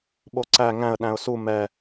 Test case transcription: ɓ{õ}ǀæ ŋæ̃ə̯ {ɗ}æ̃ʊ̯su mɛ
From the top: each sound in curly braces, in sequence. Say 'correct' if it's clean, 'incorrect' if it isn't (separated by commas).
incorrect, correct